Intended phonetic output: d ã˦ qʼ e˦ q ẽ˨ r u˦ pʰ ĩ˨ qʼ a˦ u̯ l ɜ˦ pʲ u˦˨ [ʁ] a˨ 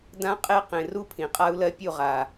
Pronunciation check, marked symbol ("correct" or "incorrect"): correct